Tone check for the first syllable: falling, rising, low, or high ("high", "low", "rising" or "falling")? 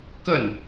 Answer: falling